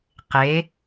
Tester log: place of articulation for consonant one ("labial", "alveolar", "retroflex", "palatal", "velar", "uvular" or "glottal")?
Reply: uvular